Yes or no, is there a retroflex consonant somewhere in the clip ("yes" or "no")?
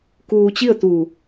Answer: no